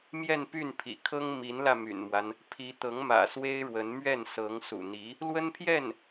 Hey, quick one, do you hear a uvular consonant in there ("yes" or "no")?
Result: no